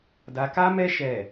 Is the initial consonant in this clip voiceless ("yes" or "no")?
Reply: no